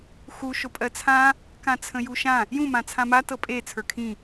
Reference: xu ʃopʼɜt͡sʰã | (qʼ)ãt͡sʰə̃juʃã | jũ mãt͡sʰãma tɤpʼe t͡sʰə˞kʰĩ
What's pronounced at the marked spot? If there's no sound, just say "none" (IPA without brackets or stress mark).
k